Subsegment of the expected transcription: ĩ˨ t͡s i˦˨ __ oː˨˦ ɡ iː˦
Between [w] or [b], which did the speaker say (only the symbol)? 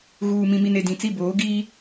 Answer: b